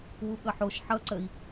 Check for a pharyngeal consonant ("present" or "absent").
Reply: present